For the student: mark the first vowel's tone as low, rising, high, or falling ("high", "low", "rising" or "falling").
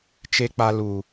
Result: low